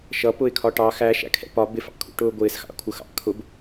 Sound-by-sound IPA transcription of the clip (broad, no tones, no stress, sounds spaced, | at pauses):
ʃ ʌ p ʊ ɪ̯ kʰ ɒ ʈ ɑ x æ ʃ æ̰ kʰ ɛ̰ p ɒ b ɪ f ɑ̰ kʰ ṵ ʈ ʊː ɡʷ ɪː s x ɑ̰ kʷʰ ə x ɑ̰ kʰ ʊ b